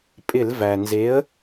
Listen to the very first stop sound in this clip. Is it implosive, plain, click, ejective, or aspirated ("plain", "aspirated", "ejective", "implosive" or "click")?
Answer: ejective